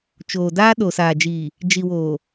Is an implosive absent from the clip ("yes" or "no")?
no